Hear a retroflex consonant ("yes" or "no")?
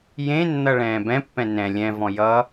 yes